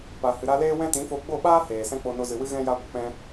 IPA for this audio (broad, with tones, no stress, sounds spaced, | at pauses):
p a˨ h ɨ˨ ɾ a˧ l eː˦ w ɛ̃˦ t ĩ˨˦ f o˧ ɡ͡b o˦˨ ɓ aː˦ h eː˨ s ɛ̃˦ k͡p o˧ n o˧ z ɨ˨ w ɨ˦ ɣ ɛ̃˧ j a˧ ɡʷ ə˨ k͡p ɛ̃˧